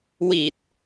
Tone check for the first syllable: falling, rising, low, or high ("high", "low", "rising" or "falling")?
low